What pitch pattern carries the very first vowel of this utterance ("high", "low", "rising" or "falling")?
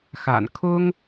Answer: low